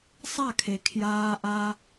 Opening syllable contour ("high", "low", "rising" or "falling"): falling